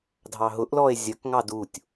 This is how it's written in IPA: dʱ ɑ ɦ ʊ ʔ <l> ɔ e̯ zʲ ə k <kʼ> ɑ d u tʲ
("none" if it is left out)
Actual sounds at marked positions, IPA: l, ŋ

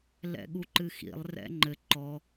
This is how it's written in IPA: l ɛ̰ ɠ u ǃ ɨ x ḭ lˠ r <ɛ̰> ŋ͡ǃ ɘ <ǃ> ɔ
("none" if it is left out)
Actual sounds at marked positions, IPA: ɛ̰, ǃ

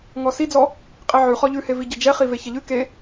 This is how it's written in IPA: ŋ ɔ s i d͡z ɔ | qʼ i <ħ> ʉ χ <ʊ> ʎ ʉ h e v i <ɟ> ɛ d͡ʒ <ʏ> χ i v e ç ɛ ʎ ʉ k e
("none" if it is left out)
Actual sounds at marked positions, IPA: ʕ, ɔ, ɟ, ɛ

